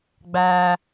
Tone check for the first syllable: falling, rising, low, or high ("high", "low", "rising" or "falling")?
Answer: high